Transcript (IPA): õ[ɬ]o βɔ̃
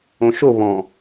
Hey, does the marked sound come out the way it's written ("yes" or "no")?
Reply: no